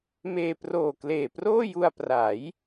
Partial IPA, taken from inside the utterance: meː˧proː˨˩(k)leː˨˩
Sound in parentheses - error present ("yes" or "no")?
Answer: no